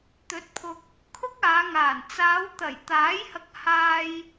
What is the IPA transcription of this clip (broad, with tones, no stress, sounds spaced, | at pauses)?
t̪ ɵ˨˥ t̚ pʰ ʊ˧ k̚ | kʰ ʊ˥ k̚ aː˨˧ ŋ aː˨˩ n t͡s aː˨˧ w t̪ ɐ˨˩ j t̪ aː˨˥ j h ɐ˧ k̚ h aː˧ j